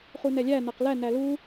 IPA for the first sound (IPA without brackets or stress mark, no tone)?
χ